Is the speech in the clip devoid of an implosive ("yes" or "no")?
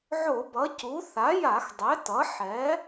yes